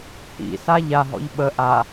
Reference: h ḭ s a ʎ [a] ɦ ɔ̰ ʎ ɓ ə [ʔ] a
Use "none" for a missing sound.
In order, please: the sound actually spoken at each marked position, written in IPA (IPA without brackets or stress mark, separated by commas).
a, ʔ